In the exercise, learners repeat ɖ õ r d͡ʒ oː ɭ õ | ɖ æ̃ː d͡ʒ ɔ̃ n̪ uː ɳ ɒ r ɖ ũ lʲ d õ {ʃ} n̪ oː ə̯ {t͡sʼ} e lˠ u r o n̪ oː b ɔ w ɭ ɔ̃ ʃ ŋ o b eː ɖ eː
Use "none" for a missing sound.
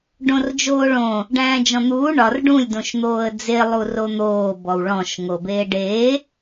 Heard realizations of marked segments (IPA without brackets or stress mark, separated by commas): ʃ, d͡z